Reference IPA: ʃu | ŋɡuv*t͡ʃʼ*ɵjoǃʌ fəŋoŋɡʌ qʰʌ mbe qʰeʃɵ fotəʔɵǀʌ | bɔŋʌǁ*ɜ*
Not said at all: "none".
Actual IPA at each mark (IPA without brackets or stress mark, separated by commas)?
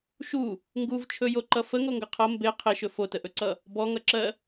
t͡ʃʰ, ɜ